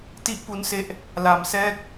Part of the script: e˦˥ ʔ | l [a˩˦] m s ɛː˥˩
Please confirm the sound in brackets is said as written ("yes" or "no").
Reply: no